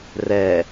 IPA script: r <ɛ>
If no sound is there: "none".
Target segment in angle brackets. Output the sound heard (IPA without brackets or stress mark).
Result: ɛ